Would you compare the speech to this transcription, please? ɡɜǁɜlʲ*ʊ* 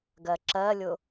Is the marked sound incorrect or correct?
correct